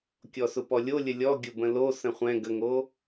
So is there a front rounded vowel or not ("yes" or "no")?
no